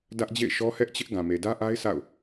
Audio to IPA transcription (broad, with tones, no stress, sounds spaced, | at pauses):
d ä˦ ʔ d͡ʑ ḛ˦˨ ɪ̯ ʃ ɔ˦ h ɛ˦ ʔ t͡ɕ ɪ˦ ʔ ɡ ã˨ m e˨ d ä˦ ʔ a˦ ɪ̯ s a̰˦˨ ʊ̯